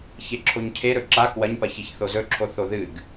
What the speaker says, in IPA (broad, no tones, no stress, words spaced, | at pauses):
çeǁʰoɲcʰe ɾɵǁa kwɐɲpɐçiç θozɵǁʰo θoðɨɡ